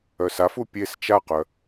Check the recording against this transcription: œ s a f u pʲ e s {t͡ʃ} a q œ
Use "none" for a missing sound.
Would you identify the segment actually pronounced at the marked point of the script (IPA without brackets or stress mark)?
t͡ʃ